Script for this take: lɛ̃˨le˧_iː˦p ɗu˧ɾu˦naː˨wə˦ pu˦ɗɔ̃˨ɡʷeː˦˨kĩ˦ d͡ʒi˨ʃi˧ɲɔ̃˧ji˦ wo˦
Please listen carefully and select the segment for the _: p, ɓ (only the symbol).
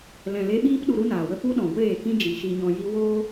ɓ